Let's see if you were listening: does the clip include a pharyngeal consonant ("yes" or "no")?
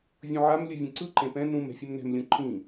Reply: yes